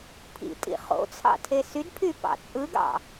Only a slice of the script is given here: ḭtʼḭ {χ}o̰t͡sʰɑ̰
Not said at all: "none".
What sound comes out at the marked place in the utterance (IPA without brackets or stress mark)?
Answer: χ